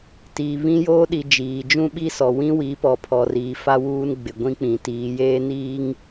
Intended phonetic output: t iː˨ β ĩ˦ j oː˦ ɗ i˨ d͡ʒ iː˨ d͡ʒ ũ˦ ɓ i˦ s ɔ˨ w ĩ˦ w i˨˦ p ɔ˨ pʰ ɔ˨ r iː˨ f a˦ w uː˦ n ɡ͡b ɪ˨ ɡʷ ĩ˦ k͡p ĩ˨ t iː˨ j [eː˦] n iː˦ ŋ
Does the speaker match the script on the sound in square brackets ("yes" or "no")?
yes